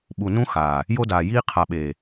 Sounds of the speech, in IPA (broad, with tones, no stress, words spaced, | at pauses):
ɓu˨nũ˦ xaː˨ | jo˦daː˨jiː˦ qʰa˨ɓeː˨